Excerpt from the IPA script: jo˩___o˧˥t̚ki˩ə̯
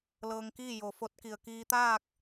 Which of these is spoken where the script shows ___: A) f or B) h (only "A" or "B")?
A